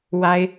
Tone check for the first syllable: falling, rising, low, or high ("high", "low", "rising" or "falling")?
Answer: high